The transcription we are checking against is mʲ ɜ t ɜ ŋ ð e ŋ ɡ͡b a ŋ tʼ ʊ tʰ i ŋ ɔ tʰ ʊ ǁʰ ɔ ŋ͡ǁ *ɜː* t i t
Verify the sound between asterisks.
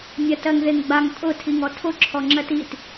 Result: incorrect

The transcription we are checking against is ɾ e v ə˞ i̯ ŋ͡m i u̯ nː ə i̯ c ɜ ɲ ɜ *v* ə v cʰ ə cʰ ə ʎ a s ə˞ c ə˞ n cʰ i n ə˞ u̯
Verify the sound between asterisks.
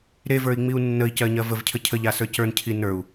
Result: correct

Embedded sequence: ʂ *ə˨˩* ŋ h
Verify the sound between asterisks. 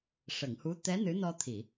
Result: incorrect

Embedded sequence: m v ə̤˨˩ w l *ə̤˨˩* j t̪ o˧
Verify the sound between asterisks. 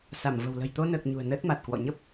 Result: correct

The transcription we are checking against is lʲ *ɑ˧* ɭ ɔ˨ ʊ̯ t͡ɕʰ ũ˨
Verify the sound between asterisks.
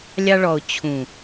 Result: correct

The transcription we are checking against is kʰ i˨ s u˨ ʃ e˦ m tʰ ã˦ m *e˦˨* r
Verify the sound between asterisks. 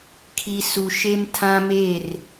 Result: correct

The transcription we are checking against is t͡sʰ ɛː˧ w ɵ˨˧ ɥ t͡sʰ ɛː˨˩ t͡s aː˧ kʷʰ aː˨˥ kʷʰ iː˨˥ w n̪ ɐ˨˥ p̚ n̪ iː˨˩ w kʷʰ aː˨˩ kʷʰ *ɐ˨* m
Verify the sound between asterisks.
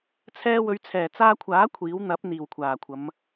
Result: incorrect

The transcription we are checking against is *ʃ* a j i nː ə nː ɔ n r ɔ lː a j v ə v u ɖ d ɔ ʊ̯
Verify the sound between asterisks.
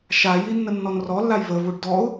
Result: correct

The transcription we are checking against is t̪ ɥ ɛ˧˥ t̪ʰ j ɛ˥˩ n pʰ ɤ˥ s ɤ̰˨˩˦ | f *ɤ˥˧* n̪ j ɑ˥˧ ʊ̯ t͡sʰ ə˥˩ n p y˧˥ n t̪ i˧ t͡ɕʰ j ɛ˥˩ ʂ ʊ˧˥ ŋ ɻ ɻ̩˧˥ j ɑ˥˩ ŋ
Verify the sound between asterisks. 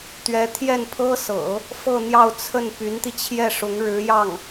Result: correct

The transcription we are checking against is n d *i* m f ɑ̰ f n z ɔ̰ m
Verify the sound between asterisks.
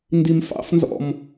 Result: correct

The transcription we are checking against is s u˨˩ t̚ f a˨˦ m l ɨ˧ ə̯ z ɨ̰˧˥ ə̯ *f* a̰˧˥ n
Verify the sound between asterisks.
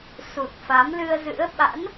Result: incorrect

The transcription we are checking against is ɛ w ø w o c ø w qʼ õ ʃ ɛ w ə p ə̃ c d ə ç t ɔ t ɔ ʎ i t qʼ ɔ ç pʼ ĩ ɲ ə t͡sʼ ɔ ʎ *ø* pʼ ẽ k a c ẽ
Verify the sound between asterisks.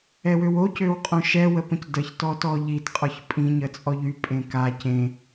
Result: incorrect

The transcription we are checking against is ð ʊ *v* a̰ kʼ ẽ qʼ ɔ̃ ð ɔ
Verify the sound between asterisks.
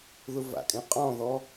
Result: correct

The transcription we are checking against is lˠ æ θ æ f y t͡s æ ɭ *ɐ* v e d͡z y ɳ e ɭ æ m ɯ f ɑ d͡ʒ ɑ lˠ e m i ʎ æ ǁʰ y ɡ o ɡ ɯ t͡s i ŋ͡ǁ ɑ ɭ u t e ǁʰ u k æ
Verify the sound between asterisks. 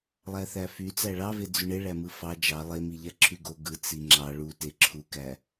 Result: incorrect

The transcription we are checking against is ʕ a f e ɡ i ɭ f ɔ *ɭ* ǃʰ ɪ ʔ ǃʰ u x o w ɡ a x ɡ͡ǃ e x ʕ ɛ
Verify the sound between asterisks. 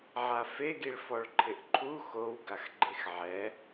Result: correct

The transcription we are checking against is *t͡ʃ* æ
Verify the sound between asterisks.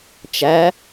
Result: correct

